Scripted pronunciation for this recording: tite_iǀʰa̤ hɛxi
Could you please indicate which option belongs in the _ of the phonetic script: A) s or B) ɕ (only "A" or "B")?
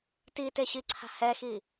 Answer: B